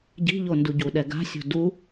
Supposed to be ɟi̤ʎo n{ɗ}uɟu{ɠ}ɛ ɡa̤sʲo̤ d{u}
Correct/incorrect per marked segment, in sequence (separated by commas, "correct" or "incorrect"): incorrect, incorrect, correct